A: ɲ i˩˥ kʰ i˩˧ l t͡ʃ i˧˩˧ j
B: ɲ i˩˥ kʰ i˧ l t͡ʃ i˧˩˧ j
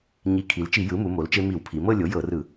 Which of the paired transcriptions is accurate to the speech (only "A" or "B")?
A